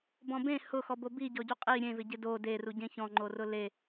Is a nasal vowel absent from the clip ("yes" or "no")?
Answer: no